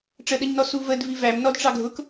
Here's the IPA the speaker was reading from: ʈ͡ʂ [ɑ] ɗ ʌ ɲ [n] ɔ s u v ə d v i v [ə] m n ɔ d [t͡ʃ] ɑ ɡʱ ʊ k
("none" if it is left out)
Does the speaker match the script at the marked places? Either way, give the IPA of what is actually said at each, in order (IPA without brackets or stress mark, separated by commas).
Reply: ə, n, æ, ʈ͡ʂ